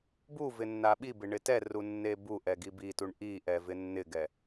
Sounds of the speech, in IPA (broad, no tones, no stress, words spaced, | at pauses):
bu vɪnːaɓibɪ ɳɪtɛru nːebuʔɛ ɡibituɳ ʔiʔɛ vɪnːɪɡɛ